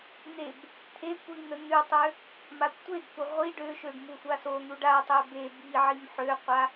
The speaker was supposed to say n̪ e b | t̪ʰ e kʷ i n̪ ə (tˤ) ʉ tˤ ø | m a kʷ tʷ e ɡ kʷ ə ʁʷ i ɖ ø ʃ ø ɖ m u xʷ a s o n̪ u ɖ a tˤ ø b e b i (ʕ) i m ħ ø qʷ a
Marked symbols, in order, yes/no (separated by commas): no, yes